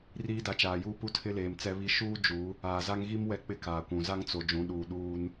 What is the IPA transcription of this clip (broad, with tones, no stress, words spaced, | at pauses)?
riː˦da˨t͡ʃaː˨juː˦ pu˦tʰɪ˦leː˨m t͡sɛ˦βi˦ ʃuː˦ d͡ʒu˨˦ | aː˨za˦ŋɣi˦m wɛ˦k͡pɪ˦kaː˨kʷũ˨ za˦ŋt͡so˨ d͡ʒũ˨˦ɗuː˨ ɗuː˦n